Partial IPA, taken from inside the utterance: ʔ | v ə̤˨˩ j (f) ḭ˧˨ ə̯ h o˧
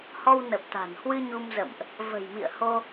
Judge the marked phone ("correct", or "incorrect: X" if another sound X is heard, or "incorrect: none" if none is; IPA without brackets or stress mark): incorrect: m